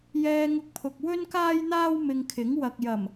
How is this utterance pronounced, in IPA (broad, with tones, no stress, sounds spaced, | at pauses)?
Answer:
j ɛː˧ ŋ ʊ˧ k̚ pʰ ʊ˨ k̚ w ɵ˥ n k aː˥ j n̪ aː˥ w m ɪ˧ ŋ kʰ ɪ˨˥ ŋ w ɐ˨ k̚ j ɐ˨˩ m